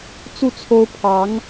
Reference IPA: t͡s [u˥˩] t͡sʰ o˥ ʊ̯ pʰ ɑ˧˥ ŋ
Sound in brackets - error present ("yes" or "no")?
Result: no